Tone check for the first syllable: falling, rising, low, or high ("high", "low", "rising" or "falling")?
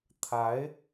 rising